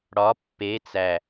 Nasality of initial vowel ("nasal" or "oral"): oral